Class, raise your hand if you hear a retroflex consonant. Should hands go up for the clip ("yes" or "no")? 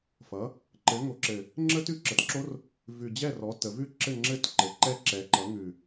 no